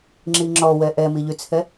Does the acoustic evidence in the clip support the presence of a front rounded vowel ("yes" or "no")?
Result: yes